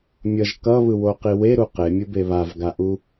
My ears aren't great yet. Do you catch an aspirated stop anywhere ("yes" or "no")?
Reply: no